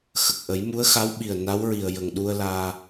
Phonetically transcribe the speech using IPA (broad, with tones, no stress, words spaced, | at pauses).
xə˨˩k̚ʔə˨˩˦jmu˧˥ə̯ xa˧˥wɓi˨˩ə̯ na˧˥wɹi˨˩ə̯jə˨˩ŋɗu˧ə̯ laː˧